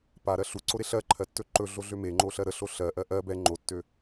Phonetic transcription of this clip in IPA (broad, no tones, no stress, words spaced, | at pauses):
paɾɜ ɬuǀoɾe ɬɜǃʰɜtːɵ ǃɵɮoɮø meŋ͡ǃoɬɜ ɾəɬo ɬɜʔɜ ʔɜ bɛ ŋ͡ǃotːø